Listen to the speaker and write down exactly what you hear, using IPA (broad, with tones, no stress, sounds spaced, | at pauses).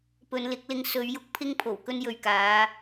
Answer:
p ɵ˨˧ n l ɪ˨˥ k̚ l ɪ˧ ŋ s ɵ˨˧ ɥ j ʊ˨ k̚ pʰ ɪ˧ ŋ pʰ o˨˩ w k ɵ˧ n j ɵ˨ ɥ k aː˨˧